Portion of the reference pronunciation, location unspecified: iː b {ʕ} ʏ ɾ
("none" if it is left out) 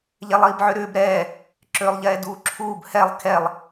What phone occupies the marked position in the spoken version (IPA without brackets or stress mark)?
ʕ